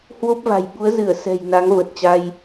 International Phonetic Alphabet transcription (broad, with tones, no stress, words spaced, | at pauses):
hwo˦˥p̚va̤˨˩j ɓu˨˦ə̯zɨ˧˩ə̯ sɛ̤˨˩j na˨˦ŋvə˨˩t̚t͡ɕa˧j